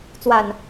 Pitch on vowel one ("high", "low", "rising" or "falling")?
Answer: low